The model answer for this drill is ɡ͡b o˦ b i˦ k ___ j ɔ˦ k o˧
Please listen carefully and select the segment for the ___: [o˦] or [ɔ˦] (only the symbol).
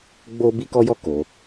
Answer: ɔ˦